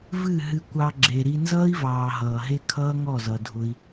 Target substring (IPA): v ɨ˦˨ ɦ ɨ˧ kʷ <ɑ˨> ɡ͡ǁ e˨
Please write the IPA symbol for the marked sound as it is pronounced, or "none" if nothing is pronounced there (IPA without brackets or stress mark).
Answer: ɑ˧